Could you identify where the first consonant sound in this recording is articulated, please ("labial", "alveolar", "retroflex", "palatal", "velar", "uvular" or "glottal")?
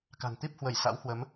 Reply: velar